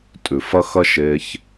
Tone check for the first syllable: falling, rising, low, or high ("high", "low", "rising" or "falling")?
low